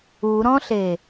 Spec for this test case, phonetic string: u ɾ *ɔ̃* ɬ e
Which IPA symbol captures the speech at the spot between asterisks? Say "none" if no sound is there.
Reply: ɔ̃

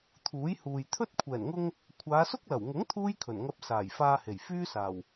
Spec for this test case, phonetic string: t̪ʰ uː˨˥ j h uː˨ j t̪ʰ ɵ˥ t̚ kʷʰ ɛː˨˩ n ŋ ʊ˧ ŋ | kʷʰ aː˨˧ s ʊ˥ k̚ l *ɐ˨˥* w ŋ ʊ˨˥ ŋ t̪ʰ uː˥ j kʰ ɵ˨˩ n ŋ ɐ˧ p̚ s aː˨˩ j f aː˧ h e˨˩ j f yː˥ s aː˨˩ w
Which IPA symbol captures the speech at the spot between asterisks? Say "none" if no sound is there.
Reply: ɐ˨˩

